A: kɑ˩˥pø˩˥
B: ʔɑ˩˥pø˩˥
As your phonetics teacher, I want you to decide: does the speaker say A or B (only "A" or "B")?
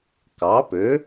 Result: A